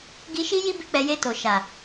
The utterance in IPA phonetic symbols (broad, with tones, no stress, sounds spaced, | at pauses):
ɡ i˧ ʃ i˦ j i˦ b i˦˨ k͡p ɛ˨˦ j e˦˨ t o˨ ʃ a˨